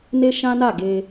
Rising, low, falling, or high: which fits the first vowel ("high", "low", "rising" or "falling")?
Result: high